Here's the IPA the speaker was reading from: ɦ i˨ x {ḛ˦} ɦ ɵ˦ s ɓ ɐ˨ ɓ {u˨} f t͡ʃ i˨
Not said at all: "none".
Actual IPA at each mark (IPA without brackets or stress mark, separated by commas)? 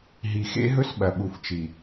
ḛ˦, u˨